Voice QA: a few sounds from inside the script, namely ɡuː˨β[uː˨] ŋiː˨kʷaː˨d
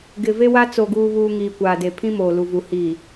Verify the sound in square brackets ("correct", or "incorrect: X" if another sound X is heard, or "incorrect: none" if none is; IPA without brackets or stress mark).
correct